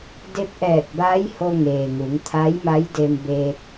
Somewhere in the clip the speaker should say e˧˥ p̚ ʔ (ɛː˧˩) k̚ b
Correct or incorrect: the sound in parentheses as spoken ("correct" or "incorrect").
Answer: correct